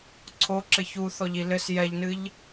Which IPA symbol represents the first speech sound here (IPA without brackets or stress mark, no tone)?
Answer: ǀʰ